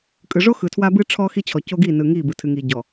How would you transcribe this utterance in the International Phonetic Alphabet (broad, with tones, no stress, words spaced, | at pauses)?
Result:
kʼɯ˨ʐo˦ xɯ˨tʰwa˦bɨ˦ ʈ͡ʂʰɔ˦xi˦t͡ɕʰɔ˨ co˦ɡi˦˨nɯ˨ ŋi˦˨ bɯ˨tʰɨ˨ŋi˨ɟɔ˨